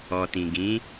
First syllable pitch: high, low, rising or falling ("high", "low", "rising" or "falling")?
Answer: low